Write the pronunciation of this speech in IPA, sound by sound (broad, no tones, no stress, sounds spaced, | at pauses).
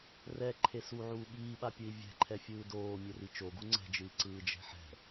r ɛ ǃʰ e s u ʕ uː ɓ iː ɓ a pʲ ɯ i̯ vʲ ɛ̤ ǃʰ ɛ fʲ ɯː d oː mʲ ɛ r i t͡ʃ o ɡ u ŋ͡ǀ ɛ̤ d͡ʒ ɯ i̯ ǀ ɯː d͡ʒ ɛ̤ ħ ɛ̤